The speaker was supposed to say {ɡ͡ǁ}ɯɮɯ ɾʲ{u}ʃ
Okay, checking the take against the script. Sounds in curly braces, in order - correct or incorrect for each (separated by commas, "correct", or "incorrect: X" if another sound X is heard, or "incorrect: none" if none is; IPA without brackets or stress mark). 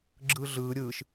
correct, incorrect: ɯ